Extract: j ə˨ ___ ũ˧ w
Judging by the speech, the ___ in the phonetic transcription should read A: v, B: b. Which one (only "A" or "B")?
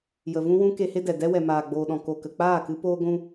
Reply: A